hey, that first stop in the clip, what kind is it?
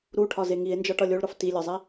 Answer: aspirated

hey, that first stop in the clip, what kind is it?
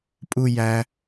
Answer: ejective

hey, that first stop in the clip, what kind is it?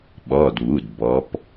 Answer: implosive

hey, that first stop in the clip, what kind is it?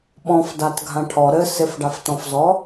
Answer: implosive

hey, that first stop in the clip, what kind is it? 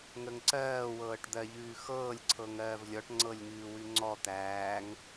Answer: click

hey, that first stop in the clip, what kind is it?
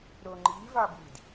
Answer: click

